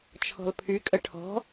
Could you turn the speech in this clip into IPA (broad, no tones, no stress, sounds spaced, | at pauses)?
t͡ʃʰ ɔ̤ l pʰ y kʼ ə ʈʰ ɔ̤